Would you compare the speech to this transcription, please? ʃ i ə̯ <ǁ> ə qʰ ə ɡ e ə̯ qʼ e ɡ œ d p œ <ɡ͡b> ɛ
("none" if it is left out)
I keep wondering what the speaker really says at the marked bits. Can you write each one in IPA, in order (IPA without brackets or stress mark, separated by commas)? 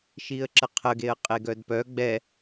ǁ, ɡ͡b